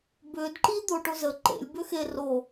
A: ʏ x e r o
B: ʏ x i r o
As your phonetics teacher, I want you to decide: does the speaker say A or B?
A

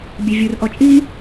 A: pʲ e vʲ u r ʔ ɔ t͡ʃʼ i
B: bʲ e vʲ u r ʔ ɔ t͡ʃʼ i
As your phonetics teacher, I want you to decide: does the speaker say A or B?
B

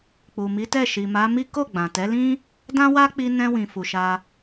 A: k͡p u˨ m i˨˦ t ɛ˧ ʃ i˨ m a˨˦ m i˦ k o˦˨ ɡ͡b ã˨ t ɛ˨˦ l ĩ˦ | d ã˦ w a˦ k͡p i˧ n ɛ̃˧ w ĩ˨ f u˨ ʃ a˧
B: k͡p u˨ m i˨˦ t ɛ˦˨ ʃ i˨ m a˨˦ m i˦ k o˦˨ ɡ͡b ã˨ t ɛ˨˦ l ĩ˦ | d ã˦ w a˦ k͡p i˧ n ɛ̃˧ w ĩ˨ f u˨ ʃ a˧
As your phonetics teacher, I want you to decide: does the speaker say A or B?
B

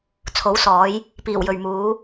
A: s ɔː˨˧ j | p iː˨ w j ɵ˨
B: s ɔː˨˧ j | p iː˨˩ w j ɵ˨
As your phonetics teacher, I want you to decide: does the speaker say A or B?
B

